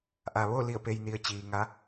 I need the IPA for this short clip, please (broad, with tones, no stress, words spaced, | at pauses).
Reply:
ʔa˩ʋo˥˨ li˧˩ə̯pe˩jni˩ə̯ t͡ɕiː˩ŋa˧˥